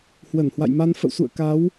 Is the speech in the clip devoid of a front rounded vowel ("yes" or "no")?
yes